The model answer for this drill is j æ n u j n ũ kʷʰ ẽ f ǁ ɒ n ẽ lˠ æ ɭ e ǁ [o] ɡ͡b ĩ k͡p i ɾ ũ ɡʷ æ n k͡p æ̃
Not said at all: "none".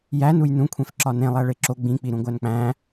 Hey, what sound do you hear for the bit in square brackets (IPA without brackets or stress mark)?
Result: o